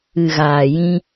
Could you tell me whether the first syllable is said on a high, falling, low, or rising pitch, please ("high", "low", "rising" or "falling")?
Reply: low